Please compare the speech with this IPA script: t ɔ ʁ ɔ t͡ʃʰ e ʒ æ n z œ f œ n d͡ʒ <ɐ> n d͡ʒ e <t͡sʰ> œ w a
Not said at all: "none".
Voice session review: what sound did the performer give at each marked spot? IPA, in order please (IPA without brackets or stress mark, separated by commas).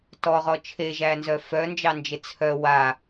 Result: ɑ, t͡sʰ